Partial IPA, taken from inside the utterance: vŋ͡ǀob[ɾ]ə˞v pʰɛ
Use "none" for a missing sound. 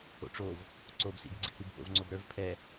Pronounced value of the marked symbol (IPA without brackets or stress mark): ɾ